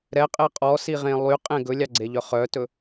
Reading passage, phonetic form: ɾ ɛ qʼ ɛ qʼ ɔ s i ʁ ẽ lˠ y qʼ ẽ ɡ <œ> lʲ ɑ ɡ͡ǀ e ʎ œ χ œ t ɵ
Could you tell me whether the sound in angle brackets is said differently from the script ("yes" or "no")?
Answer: yes